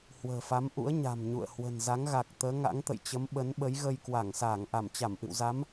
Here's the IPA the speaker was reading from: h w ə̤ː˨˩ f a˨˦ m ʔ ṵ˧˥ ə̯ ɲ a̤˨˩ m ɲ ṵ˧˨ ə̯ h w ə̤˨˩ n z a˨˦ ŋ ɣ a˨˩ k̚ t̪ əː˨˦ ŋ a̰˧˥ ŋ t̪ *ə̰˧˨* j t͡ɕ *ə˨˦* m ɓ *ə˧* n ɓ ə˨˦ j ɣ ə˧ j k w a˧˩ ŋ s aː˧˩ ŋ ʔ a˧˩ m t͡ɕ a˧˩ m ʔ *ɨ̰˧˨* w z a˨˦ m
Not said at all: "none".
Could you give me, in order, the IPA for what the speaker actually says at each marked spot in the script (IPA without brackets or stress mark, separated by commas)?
ə̰˧˨, ə˨˦, ə˨˦, ɨ̰˧˨